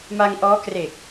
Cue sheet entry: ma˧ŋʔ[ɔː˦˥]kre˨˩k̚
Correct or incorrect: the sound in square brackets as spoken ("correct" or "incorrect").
correct